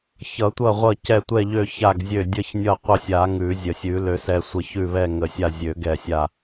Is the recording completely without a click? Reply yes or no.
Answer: yes